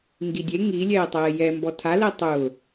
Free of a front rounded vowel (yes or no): yes